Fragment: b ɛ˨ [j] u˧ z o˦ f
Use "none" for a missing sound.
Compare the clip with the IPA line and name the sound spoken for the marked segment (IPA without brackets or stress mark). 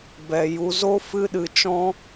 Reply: j